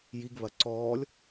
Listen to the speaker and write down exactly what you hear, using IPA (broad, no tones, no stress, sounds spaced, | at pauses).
j i ɡ β ɐ ǀ ɔː lʲ